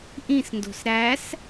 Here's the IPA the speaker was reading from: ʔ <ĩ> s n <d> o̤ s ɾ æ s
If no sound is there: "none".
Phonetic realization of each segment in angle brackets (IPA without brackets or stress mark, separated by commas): ĩ, d